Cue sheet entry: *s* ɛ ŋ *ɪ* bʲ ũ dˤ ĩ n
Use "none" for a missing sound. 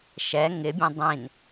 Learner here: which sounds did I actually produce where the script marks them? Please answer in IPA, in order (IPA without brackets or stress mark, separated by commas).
ʃ, ɪ